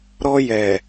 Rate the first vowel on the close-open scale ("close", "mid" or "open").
mid